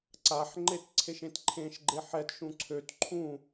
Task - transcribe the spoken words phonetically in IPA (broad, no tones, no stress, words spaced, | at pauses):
ǀaħŋ͡ǃet ǀʰeʃẽtǃʰẽʃɡ͡ǃe ħɛtʃũ ǀʰøt ǃʰũ